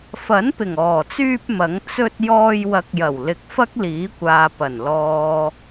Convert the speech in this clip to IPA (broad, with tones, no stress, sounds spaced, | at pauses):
f ɐ˨˥ n p ɪ˨˩ ŋ ɔː˨˩ t͡s yː˧ p̚ m ɐ˨˥ ŋ t͡s ɵ˧ t̚ j ɔː˧ j w ɐ˨˥ k̚ j ɐ˨˩ w l ɪ˨˥ k̚ f ɐ˥ k̚ l iː˨˥ kʷ aː˨ p ɐ˨˩ n l ɔː˨